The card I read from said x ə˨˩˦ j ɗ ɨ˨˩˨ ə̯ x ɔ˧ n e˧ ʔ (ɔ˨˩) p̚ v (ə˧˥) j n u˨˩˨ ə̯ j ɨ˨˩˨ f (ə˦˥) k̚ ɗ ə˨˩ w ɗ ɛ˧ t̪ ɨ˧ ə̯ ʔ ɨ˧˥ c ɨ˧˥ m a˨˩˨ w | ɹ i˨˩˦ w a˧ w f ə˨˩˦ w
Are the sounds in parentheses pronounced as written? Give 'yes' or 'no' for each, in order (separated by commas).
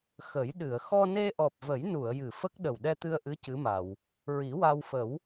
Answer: yes, no, yes